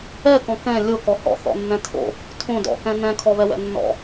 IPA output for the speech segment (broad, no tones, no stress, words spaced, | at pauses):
ɛkɔ̃ kɛ̃ lʲokɔ hɔ̰θɔ̰nːɛ̃ tʰo̰ | tʰõ dɔ̰kɛ̃ nɛ̃kʰɔβɛwɛ̰ nːɔ̰